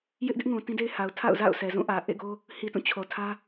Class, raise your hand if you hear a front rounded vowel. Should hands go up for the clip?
no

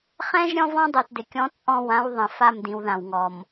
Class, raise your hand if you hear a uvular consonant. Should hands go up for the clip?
yes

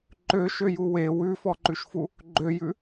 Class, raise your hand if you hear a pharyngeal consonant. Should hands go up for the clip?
no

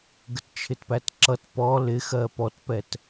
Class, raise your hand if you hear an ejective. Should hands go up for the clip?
no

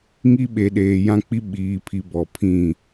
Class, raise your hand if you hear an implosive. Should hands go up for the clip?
yes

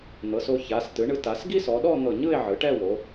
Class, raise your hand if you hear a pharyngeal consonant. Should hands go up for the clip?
yes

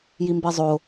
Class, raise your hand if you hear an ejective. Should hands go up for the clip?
no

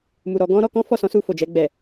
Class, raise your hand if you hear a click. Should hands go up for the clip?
no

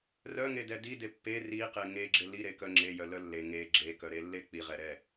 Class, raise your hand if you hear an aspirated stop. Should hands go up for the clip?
no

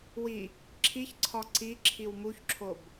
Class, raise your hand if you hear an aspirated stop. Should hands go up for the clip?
yes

